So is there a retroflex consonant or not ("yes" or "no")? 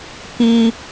no